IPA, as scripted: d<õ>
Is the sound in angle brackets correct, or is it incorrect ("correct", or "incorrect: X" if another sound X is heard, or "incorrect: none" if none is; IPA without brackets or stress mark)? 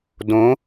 correct